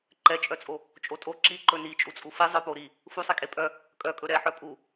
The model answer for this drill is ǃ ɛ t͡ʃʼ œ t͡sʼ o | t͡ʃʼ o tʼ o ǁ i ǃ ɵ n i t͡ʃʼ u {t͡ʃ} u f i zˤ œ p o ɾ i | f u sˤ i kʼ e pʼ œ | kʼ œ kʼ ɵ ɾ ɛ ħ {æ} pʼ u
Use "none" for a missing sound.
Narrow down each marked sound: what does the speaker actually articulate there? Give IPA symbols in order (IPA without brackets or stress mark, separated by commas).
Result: t͡sʼ, œ